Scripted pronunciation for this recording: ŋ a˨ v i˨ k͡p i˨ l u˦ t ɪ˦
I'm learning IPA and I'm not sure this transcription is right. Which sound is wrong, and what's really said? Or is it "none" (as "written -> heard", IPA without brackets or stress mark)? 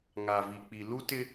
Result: none